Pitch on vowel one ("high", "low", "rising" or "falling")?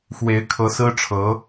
rising